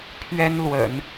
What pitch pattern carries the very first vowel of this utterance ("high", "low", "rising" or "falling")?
high